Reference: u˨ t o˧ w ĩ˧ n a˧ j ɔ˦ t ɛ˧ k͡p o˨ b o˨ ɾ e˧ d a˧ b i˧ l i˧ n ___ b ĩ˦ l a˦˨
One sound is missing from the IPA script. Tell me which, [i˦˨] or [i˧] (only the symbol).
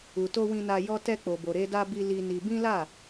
i˧